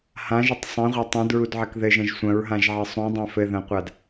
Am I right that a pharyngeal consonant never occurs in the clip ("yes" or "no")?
no